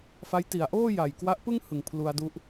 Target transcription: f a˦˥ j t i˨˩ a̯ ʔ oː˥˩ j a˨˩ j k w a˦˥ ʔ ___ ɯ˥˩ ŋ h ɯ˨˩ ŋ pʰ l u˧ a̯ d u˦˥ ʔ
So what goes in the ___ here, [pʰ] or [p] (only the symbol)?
p